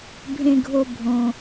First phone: bʱ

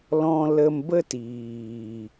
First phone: l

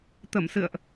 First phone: t̪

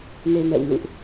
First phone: n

